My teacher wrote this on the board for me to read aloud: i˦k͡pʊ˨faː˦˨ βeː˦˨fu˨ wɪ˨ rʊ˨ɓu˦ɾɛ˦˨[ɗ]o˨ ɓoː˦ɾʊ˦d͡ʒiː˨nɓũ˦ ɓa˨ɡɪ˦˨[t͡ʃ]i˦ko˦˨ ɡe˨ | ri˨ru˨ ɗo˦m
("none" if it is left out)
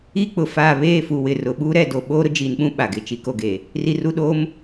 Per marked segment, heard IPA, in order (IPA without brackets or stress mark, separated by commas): d, t͡ʃ